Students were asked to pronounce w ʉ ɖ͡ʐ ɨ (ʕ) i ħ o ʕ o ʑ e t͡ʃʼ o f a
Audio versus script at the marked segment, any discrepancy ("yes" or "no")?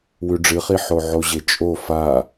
yes